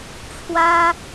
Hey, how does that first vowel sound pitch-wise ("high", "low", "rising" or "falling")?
high